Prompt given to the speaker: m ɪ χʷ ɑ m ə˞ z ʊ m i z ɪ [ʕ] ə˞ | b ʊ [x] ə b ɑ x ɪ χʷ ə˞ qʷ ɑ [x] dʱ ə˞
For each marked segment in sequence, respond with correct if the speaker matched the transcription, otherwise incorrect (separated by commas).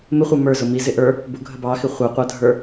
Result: incorrect, incorrect, incorrect